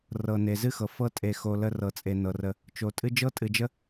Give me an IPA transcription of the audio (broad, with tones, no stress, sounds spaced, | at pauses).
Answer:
r ɤ˩ n e˩ z ɨ˦ x ɤ˩ f ɤ˦ tʼ e˨ x o˨ l ə˦ r ɤ˨ t͡sʼ e˨ n ɤ˩ r ə˨ | t͡ʃ o˨ tʼ ɨ˥ d͡ʒ ɤ˥ tʼ ɨ˨ d͡ʒ ə˥